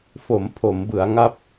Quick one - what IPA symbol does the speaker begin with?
f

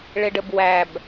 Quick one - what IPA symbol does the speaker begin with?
ɭ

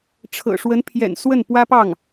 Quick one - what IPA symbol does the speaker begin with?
ʈ͡ʂʰ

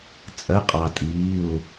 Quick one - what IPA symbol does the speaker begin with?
t͡sʼ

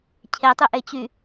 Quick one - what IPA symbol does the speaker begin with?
cʰ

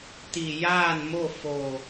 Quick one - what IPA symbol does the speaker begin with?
t̪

